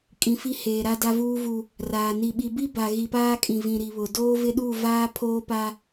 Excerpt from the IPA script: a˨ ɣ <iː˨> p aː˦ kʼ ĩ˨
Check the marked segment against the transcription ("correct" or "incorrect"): incorrect